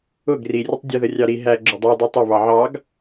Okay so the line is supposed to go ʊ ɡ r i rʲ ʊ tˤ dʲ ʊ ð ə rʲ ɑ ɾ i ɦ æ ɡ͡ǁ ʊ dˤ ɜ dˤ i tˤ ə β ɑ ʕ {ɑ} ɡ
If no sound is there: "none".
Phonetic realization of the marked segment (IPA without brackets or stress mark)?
ɑ